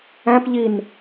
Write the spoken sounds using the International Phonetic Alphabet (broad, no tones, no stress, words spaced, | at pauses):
æ̃pʎin